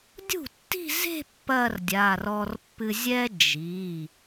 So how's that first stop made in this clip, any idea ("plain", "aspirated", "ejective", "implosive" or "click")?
plain